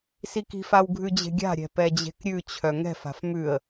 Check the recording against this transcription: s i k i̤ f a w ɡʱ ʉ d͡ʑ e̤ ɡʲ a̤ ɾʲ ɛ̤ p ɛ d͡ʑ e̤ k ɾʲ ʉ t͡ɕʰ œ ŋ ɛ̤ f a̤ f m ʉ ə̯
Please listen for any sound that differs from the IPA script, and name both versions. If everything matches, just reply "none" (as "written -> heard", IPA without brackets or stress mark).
none